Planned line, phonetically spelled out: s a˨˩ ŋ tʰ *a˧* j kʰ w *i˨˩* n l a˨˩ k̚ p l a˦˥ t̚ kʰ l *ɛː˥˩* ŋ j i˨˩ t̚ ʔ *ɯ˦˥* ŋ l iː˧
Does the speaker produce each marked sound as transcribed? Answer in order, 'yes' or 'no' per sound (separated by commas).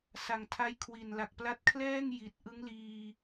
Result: no, yes, yes, yes